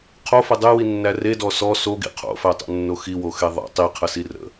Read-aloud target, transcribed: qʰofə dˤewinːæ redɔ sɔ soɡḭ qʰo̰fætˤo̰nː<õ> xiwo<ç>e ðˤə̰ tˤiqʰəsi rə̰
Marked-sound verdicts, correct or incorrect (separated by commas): incorrect, incorrect